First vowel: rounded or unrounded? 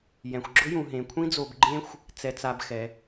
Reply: unrounded